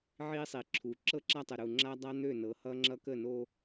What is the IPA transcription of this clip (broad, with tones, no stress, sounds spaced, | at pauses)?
ʕ i˦ sˤ i˨ ǁʰ u˨ ǁ ɤ˦ ǁ a˦ tˤ ə˨ ɾ u˨ ŋ͡ǁ a˦ dˤ a˦ n̪ ø˦˨ n ɤ˨˦ h ʌ˦ ŋ͡ǁ ʌ˦ k ə˦˨ n o˦